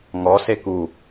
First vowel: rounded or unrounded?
rounded